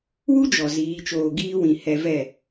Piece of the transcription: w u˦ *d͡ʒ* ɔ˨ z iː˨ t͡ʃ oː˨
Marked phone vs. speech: correct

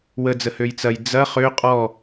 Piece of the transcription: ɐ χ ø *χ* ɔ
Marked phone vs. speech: incorrect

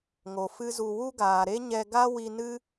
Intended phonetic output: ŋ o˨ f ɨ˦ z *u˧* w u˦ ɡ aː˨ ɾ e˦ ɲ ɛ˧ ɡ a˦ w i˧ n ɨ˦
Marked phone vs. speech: correct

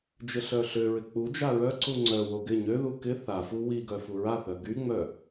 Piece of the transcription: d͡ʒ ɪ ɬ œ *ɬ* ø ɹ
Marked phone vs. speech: correct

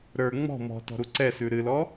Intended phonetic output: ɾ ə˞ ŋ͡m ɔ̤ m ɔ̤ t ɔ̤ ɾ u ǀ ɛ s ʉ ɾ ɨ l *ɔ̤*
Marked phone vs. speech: incorrect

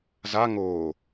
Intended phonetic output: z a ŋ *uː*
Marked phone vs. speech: incorrect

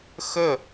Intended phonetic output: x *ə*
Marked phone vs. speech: correct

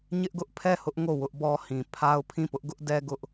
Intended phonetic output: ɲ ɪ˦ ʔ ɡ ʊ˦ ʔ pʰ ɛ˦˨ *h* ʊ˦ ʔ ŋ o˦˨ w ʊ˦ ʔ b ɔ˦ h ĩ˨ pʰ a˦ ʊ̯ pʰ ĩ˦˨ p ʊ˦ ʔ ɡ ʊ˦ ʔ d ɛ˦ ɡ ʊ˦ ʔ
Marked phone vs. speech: correct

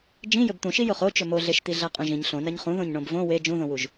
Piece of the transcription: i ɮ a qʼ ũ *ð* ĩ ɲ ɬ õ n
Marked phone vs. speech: incorrect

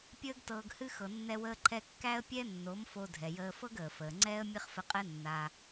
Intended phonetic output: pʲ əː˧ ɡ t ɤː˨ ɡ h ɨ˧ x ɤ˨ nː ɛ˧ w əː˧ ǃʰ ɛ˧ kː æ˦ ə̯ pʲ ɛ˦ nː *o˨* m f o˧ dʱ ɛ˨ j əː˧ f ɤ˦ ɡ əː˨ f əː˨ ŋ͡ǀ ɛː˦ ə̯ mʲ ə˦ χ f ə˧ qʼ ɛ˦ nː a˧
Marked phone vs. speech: incorrect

